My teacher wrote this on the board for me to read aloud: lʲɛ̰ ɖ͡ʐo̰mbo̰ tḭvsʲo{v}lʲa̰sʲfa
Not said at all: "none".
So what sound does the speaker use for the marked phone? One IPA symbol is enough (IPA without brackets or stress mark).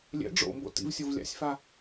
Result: v